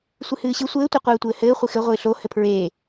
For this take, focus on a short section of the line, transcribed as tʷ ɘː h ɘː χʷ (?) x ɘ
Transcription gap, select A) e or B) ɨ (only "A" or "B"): B